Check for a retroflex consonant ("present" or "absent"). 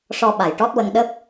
present